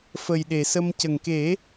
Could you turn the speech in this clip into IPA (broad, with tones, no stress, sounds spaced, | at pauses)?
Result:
f ə˨˩ j ɗ e˨˩˨ s ə˧ m c ə˨˩ ŋ k e˨˩˦